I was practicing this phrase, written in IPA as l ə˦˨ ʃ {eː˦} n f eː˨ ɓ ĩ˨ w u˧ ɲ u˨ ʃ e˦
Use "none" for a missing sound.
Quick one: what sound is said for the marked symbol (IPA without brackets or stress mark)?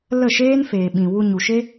eː˦